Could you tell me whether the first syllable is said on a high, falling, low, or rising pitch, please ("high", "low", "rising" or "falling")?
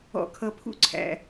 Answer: low